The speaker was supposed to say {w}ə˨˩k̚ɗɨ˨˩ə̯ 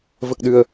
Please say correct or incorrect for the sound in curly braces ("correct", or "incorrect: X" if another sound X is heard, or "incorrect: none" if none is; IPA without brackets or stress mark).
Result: incorrect: v